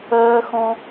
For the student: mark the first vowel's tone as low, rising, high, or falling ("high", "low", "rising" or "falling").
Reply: high